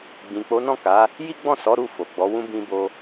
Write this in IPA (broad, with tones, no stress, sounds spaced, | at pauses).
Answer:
ɡ͡b ĩ˨ k͡p o˨˦ n ɔ̃˦˨ k a˨˦ | j i˦ ɡ͡b ɔ̃˦˨ s ɔ˨˦ ɾ u˦˨ f o˨ ɡ͡b ɔ˨˦ w ũ˧ b ĩ˧ b o˧